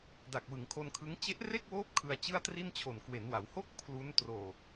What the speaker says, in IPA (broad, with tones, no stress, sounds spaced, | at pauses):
d a˨˩ k̚ w ɯ˩˦ ŋ kʰ o˧ n kʰ ɯ˦˥ ŋ t͡ɕ e˦˥ ʔ r e˥˩ k̚ w oː˦˥ p̚ kʰ ɯ˧ a̯ t͡ɕ ɯ˥˩ a̯ t r i˥˩ n t͡ɕʰ o˨˩ n k w e˩˦ n w a˩˦ w h o˥˩ k̚ pʰ l u˦˥ n t r oː˨˩ k̚